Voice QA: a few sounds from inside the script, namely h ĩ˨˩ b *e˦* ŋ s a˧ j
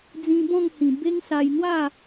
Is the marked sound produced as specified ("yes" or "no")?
yes